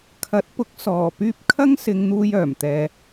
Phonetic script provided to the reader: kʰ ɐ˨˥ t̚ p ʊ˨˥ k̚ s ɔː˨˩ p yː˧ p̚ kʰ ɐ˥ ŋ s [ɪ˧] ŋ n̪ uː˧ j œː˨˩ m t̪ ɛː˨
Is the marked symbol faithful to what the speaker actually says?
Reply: no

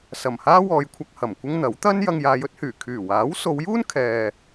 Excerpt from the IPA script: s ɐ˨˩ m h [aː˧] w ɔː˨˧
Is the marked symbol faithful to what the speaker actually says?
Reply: no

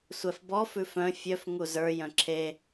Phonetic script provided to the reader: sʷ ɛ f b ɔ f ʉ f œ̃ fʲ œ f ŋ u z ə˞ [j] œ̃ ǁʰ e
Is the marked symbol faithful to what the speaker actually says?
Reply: yes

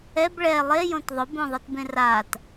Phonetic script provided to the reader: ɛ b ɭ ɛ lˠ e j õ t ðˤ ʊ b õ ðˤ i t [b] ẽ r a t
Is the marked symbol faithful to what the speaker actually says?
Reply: yes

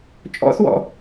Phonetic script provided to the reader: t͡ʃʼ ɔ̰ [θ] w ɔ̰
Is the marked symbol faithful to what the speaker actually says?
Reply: yes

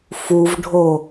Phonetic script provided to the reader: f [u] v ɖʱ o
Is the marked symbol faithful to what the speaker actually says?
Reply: yes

